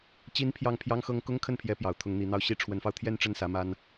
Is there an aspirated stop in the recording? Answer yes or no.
yes